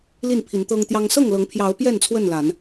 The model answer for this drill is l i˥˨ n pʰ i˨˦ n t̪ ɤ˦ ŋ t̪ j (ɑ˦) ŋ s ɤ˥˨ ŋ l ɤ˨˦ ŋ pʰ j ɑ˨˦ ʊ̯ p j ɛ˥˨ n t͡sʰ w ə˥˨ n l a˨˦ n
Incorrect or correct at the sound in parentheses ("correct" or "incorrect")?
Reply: correct